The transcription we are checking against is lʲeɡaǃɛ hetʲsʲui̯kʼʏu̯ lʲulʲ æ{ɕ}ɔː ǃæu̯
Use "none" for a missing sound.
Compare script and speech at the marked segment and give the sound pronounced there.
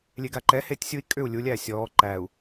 sʲ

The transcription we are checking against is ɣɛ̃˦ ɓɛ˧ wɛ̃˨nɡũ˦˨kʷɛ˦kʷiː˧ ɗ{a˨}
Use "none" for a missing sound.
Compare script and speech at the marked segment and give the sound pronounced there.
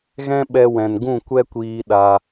a˧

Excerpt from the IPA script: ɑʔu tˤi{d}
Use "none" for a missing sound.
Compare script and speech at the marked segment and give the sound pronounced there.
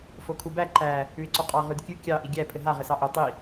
none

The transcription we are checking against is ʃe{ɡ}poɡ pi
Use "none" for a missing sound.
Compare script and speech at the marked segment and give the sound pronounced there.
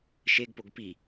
ɡ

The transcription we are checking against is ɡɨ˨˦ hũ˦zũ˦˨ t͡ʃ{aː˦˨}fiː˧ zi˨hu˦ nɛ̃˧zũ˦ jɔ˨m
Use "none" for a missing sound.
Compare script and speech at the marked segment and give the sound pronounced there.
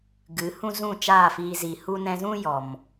aː˦˨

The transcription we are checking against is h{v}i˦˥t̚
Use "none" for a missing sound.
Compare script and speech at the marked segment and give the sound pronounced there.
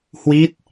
w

